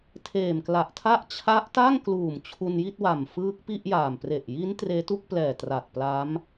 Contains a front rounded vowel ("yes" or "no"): no